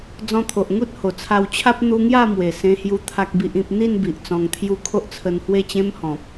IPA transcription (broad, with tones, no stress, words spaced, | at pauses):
d͡zɔ̃˧t̪ʰo˨ʔ ŋu˦t̚ho˨˩t͡sʰa˧wt͡ɕʰa˦p̚ n̪u˧ŋja˥˧mwe˨˩ sẽ˧hju˧ t̪ʰa˦k̚bi˦ʔĩ˦p̚ n̪i˥˧nbi˨ʔ t͡sɔ̃˧ŋt̪ʰju˥˧ kʰo˦ʔt͡sʰə˧nhwe˥˧t͡ɕẽ˦m hɔ̃˨p̚